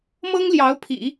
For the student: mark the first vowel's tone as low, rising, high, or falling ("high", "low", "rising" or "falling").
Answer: high